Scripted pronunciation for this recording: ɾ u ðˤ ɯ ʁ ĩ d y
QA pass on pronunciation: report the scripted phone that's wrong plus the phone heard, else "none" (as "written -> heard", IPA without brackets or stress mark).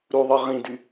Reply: none